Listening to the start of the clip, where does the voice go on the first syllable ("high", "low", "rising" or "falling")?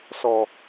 low